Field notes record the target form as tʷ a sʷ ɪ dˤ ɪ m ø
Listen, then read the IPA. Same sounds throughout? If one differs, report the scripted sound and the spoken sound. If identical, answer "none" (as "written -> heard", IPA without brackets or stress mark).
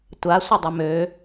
none